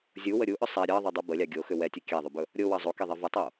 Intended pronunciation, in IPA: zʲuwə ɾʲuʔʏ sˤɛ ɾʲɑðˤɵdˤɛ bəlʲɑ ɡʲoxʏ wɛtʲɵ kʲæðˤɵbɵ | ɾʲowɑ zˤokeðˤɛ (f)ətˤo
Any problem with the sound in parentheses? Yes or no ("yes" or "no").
yes